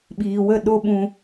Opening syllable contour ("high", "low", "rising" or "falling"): low